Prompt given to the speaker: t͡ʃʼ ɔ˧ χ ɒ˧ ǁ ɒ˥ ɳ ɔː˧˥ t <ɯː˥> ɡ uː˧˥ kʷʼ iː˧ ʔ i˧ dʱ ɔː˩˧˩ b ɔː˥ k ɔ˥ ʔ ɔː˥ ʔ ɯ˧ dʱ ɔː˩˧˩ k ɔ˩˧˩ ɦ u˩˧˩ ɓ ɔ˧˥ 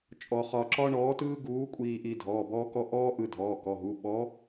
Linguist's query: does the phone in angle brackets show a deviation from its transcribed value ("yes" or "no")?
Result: no